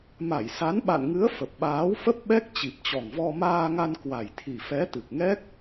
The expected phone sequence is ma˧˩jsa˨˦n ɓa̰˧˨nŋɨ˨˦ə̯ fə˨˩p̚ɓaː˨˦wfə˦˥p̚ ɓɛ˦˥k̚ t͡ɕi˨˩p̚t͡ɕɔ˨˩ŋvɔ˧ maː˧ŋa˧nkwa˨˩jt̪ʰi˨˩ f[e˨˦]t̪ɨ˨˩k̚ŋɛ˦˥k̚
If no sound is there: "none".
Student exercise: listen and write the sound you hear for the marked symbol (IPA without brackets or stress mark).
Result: ɛ˨˦